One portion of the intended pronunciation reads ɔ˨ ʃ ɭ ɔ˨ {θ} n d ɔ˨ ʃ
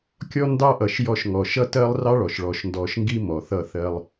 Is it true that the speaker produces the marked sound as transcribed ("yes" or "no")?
no